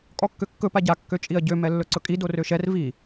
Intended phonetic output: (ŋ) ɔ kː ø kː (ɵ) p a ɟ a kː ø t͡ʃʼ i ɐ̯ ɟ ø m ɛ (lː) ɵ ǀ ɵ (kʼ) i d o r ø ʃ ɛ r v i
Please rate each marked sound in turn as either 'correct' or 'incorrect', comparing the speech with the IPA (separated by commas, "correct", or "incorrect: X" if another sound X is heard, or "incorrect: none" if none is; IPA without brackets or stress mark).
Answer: incorrect: kʼ, correct, correct, correct